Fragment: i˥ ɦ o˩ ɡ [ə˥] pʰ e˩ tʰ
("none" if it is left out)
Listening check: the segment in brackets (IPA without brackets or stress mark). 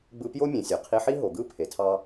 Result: ɯ˥